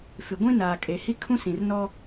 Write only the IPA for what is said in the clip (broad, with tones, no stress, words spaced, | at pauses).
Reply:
fɪ˨ɡʷĩ˦ naː˨kʼe˨˦hi˦ kʰũ˦sĩ˨rnɔ˦